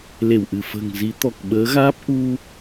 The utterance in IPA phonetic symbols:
l e˧˩ w ʔ ɨ˧˩ f ə̤ː˨˩ ŋ z i˨˦ t̪ ɔ˨˩ k̚ ɓ əː˨˦ ɣ aː˦˥ p̚ ʔ u˧

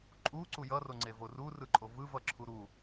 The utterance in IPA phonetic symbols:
ǃʼ u ǀ u j ʌ r o ŋ͡ǀ e v o r u r ɯ ǃʼ o v ɯ v ʌ ǁʰ u ɾ u

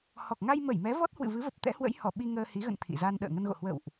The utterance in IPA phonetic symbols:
h ɔ˨˩ k̚ ŋ a˧ j m ə˧˩ j m ɛ˨˦ v ɔ˦˥ t̚ h w ɨ̰˧˨ v ɨ˨˦ v ə˨˩ p̚ t̪ ɛ̰˧˥ h w ə̰˧˥ j h ɔ˧˩ ɓ i˧ ŋ əː˧ h i˨˦ ɣ ə̰˧˨ n t̪ʰ ḭ˧˨ z a˧ n ɗ ə̰ː˧˨ ŋ ə˧ n ɣ o̰˧˨ h w ə̰˧˨ w ʔ

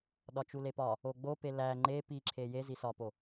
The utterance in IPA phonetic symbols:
ɗ ɒ t͡ʃ u l e p ɒ | o ɡ͡b o p e l æ ŋ͡ǃ e p i ǁʰ e j e z i s ɒ p o

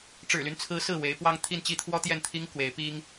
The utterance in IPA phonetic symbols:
ʈ͡ʂ ɻ̩˨˩ l y˦ n t͡sʰ ɹ̩˧˥ s ɹ̩˥˩ w e˧˥ ɪ̯ p w ɑ˥ ŋ t̪ʰ i˥˧ n t͡ɕ i˥˩ t̪ʰ w ɔ˥ t̪ j ɛ˥˩ n t̪ʰ i˥ ŋ k w e˧˥ ɪ̯ p i˥ ŋ

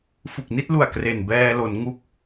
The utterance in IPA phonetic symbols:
f u˨˩ k̚ n i˥˩ t̚ l u˨˩ a̯ k r e˨˩ n b ɛː˧ l o˩˦ n ŋ u˦˥ k̚

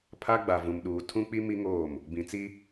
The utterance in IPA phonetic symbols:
pʰ a˦ ɡ͡b a˨ v ũ˨ m ɗ uː˨ tʰ ũ˦ k͡p i˦ m i˦ ŋ oː˦˨ m | b ĩ˨ t͡s i˦

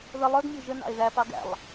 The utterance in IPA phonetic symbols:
ð ə lˠ ə˞ ɡ mʲ ə˞ ʒ ə n ɑ̰ e̯ ð æ p ɑ ɡ æ̰ lˠ

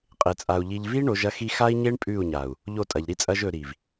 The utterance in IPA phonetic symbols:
qʼ e˨ t͡sʼ a˨ u̯ ʎ i˨ ʎ v i˦ ɳ o˨˦ ʒ ɐ˦ x i˦ x a˦ i̯ ɲ e˦ ɳ pʼ ʉ˦˨ u̯ ɲ a˨ u̯ | ʎ o˦˨ tʼ ɐ˨ ʎ ɾ i˦ t͡sʼ ɐ˦ ʒ ɵ˨ ɾ i˨ v

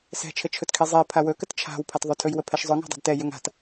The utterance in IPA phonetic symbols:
s ɛ̤ t͡ʃʰ ə t͡ʃʰ ɵ t kʰ i zˤ i pʰ a w ɵ k ə t t͡ʃʰ a̤ w pʰ a t ðˤ ɵ tʰ ɵ j w ə pʰ ɛ ʃ zˤ ʊ ŋ a̤ dˤ ṳ d t ɛ j ɵ ŋ a̤ t

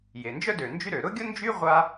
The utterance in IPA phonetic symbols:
j e˩ n d͡ʒ œ˥ d ø˩ n d͡ʒ y˥ ɾ ø˩ ɾ ʊ˥ ɡʲ ʊ˥ n d͡ʒ y˥ ʁʷ a˥

